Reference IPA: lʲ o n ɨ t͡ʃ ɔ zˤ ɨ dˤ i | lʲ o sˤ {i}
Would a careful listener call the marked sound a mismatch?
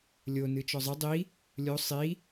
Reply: no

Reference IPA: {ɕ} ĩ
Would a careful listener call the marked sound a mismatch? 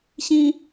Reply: no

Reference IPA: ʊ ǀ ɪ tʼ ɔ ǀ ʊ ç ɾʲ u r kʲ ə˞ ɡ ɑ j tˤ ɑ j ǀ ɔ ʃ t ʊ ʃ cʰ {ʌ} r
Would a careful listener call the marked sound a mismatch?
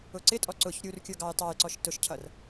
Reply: no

